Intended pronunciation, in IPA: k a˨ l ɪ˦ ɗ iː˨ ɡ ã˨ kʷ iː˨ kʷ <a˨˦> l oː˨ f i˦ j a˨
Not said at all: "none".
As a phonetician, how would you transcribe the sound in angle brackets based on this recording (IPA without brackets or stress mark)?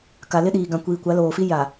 a˨˦